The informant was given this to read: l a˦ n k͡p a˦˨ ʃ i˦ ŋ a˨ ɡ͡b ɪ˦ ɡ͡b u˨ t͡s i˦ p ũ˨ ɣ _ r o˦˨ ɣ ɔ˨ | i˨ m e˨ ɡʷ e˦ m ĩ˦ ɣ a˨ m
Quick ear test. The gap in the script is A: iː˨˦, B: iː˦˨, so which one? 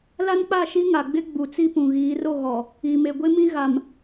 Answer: A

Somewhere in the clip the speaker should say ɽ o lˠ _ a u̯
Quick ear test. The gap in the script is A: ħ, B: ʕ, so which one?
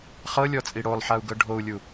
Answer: A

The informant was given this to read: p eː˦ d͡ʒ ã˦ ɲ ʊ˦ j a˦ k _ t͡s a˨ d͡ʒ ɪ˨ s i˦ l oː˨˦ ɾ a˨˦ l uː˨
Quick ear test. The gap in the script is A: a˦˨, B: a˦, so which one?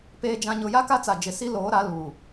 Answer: B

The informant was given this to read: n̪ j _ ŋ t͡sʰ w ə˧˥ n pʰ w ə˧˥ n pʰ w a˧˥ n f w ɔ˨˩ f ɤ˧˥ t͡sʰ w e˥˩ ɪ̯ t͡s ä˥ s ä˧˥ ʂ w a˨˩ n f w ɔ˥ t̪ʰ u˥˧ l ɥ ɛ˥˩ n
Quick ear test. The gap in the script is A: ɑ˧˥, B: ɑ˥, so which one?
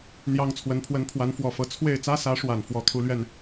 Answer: B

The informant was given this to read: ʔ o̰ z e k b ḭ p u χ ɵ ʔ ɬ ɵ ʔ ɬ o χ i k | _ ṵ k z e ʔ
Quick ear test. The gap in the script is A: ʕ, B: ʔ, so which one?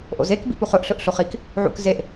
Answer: A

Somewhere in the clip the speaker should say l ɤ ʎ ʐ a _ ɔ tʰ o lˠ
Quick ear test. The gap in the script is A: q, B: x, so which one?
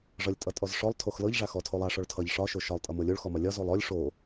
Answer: B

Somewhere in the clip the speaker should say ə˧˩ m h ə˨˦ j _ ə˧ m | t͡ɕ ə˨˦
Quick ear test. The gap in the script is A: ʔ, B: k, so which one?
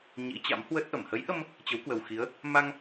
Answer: A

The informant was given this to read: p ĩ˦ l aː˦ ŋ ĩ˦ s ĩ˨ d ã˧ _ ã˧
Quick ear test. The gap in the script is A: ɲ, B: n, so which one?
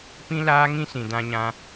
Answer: A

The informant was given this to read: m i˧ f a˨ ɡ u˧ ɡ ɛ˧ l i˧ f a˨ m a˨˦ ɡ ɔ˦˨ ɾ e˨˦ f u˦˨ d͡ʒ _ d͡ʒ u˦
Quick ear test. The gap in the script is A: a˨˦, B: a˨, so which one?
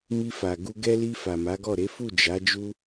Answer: A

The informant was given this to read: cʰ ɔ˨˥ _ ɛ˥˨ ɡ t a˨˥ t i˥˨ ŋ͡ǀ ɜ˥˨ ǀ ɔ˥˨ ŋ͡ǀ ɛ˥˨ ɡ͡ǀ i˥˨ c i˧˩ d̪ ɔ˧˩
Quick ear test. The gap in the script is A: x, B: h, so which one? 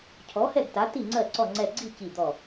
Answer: B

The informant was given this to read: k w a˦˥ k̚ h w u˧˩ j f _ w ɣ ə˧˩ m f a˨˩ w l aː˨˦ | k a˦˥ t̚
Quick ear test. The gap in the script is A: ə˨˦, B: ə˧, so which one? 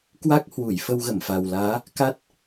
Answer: B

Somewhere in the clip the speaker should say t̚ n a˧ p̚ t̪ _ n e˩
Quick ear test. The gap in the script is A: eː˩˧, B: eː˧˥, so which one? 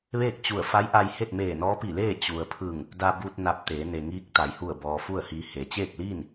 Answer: A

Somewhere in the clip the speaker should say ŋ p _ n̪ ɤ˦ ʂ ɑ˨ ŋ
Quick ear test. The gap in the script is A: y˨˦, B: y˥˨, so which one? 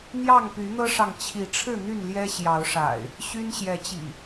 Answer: A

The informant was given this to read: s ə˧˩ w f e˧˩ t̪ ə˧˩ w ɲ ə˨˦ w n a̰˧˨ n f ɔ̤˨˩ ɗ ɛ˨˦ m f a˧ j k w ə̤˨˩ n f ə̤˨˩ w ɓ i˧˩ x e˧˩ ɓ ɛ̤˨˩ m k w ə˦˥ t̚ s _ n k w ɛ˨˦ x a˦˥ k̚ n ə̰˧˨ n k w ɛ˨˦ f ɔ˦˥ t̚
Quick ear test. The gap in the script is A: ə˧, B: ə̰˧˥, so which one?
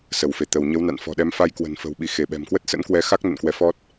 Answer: B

